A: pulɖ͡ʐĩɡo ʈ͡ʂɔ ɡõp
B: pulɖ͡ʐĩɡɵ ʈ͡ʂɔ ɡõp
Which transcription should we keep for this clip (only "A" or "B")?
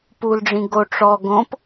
A